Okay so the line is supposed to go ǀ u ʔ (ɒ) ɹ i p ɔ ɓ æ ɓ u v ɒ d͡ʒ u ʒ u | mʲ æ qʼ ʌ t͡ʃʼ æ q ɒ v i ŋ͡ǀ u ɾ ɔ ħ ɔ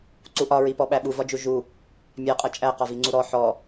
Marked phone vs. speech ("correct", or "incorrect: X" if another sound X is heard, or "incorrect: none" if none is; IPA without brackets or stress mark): correct